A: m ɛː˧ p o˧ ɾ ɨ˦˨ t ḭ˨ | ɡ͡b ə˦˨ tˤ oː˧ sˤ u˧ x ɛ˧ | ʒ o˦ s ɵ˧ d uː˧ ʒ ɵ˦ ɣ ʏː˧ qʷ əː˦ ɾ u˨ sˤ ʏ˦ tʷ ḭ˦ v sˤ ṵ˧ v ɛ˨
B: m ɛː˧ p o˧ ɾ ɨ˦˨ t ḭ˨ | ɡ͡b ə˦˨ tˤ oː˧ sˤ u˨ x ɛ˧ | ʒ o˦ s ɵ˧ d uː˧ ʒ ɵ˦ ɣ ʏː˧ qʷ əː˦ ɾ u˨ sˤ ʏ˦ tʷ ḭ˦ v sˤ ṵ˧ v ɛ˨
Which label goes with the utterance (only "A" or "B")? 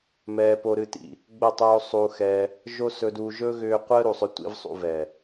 A